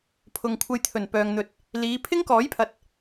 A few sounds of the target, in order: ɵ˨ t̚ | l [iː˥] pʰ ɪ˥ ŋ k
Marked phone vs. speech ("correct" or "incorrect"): incorrect